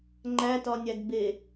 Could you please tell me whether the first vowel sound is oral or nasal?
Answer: oral